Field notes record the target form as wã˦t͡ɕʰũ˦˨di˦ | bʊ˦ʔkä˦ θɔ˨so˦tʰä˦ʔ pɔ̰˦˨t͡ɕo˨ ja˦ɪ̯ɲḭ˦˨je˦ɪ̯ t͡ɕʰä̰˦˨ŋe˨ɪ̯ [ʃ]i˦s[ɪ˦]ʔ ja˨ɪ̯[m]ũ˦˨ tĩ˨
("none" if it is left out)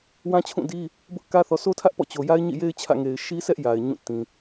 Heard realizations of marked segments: ʃ, ɛ˦, ɲ

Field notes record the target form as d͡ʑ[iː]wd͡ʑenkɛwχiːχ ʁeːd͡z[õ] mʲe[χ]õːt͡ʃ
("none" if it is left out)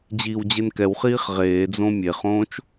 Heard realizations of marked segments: iː, õ, χ

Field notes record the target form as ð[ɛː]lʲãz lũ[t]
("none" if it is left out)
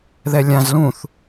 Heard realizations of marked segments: ɛ, θ

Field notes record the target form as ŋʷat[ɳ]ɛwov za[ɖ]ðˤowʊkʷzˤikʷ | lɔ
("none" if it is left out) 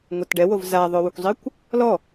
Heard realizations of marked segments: ɖ, none

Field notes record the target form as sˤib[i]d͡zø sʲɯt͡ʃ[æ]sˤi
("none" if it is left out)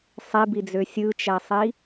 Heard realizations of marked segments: i, æ

